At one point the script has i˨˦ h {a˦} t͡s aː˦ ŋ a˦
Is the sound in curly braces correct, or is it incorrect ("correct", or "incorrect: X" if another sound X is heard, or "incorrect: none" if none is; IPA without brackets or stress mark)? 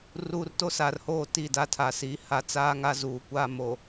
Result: incorrect: a˨